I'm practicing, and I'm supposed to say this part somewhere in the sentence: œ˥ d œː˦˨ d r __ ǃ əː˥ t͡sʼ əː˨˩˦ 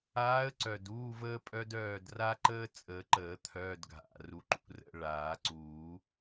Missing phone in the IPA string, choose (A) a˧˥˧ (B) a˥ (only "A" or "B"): B